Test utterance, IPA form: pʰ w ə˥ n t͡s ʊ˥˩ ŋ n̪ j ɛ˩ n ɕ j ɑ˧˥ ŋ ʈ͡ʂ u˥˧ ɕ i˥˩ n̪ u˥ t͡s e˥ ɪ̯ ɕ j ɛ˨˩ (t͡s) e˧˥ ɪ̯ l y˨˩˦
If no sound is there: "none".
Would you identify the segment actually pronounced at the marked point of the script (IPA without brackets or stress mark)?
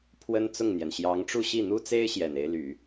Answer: n